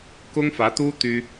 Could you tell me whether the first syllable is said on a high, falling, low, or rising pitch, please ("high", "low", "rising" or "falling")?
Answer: high